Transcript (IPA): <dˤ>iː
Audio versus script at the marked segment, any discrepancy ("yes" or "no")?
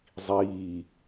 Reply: yes